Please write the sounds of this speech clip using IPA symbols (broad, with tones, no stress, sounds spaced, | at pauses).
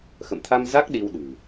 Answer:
x ə̰˧˨ m t̪ʰ a˧ m z a˦˥ k̚ ɗ i˧ w ɗ ɨ̤˨˩